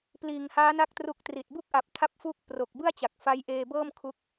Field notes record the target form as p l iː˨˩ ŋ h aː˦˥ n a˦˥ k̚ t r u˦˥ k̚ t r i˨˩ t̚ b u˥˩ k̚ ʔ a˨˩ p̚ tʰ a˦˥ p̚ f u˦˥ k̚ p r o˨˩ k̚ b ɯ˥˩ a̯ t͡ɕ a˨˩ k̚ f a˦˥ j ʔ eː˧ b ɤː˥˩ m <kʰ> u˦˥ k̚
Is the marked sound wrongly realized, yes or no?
no